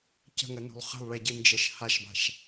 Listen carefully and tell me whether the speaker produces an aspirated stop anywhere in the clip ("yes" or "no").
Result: no